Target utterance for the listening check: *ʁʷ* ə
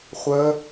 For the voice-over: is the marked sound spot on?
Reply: no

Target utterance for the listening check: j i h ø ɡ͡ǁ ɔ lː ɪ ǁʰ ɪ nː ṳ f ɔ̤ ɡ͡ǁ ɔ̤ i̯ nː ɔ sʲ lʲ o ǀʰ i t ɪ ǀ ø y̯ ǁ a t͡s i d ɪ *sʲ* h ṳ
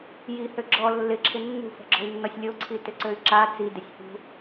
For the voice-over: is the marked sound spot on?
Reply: yes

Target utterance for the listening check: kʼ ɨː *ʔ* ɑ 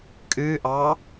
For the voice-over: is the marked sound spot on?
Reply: yes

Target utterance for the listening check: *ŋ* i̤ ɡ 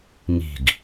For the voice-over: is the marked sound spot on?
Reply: yes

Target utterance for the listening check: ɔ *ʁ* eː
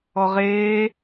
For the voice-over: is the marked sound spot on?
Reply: yes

